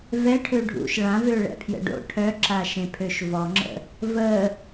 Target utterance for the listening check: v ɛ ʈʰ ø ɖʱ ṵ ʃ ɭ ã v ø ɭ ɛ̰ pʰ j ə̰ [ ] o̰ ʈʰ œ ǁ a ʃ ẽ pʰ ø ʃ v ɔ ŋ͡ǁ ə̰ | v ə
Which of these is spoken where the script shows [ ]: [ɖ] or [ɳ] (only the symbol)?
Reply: ɖ